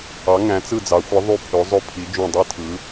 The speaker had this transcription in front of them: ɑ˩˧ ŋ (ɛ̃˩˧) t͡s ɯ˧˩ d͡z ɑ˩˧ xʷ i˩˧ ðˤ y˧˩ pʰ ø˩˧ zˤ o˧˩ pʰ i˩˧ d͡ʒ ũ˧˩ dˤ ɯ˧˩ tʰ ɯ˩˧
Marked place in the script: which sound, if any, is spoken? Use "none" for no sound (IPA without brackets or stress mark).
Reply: æ̃˩˧